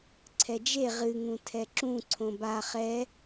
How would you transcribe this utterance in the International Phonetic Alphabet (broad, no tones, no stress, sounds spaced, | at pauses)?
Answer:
ǀʰ ɛ d͡ʒ e ʁ ɨ ŋ ũ tʰ ɛ ǁ ũ ǀʰ õ b a χ ɛ